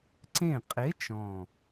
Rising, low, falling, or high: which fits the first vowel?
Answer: falling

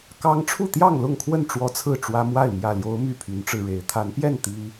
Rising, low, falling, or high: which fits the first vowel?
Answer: high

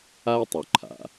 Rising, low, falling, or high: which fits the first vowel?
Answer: high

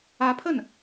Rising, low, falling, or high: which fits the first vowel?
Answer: rising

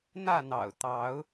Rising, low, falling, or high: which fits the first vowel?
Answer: falling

